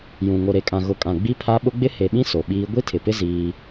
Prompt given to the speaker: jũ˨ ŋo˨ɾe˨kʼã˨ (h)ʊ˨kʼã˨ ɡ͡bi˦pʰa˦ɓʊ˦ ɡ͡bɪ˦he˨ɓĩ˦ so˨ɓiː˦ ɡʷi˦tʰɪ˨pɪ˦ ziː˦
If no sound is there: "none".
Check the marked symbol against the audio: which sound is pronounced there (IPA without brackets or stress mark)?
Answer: ɣ